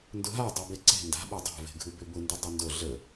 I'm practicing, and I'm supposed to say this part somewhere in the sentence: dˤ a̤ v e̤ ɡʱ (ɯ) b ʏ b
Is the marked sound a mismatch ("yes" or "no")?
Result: no